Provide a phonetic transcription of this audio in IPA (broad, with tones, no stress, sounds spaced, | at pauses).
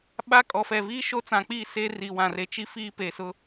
ɓ a˦ kʼ ɔ˨ f ɛ˨ v iː˦ ʃ o˦ t͡s ã˨ k͡p iː˦˨ s e˦ r i˨ w ã˨ r e˨ t͡ʃ i˦ f iː˦ p e˨ s ʊ˦